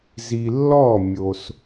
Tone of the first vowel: low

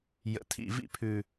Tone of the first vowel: low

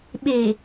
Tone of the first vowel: low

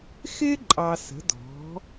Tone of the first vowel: high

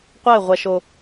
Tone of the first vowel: falling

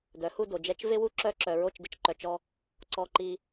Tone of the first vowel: rising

